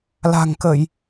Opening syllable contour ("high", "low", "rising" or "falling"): low